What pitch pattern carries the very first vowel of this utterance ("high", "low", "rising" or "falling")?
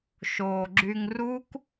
low